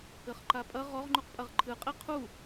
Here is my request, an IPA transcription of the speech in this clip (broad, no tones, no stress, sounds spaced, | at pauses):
ɘ χ ǃ a pʼ ɐ ʁ ɔ ʁ ŋ͡ǃ u q pʼ ɐ ʁ ǃʰ ɨ qʼ i qʰ u